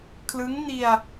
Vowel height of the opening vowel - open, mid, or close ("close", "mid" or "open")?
close